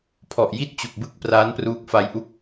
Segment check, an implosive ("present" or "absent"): absent